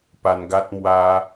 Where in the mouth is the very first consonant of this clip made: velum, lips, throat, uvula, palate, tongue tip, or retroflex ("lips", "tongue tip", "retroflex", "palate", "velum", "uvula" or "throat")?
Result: lips